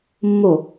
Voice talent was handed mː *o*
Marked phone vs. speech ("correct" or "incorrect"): correct